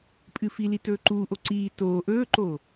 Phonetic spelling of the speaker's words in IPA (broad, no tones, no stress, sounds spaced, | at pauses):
pʼ ɨ f i l i t ɵː ǃ uː ʔ o ǀ iː t oː ʔ ɵː ǃ oː